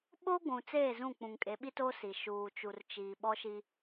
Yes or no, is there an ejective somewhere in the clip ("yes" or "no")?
yes